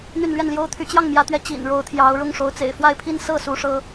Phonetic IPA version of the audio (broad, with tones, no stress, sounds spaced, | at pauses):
n̪ y˥˧ n l ɥ ɛ˥˩ n l j o˥ ʊ̯ t̪ʰ y˧˥ t͡ɕ j ɑ˥˩ ŋ m j ä˧˥ t̪ ɥ ɛ˧˥ t͡ɕ ḭ˨˩ n ɻ o˧˥ ʊ̯ t̪ʰ j ɑ˧˥ ʊ̯ ɻ ʊ˥˩ ŋ ʂ o˧˥ ʊ̯ t͡s ḛ˨˩ ɪ̯ f w a˥˧ ɪ̯ pʰ i˥˧ n s ɤ˥˩ s u˧˥ ʂ ɤ˥